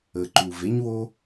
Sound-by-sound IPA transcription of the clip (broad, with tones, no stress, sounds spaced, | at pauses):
ə˨ ǃ u˨ v e˦ ɲ w o˦